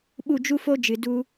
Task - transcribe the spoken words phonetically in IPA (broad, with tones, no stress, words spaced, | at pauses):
ɓu˦˨d͡ʒu˦fo˦ d͡ʒɨ˨du˦